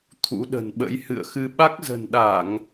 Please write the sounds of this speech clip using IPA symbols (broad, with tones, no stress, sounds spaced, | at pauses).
t̪ʰ ṵ˧˥ ɗ ə̤˨˩ n ɓ ə̰˧˥ j h ɨ̰˧˨ ə̯ x ɨ˧ ɓ a˦˥ k̚ z ə̤˨˩ n ɗ a˧˩˨ ŋ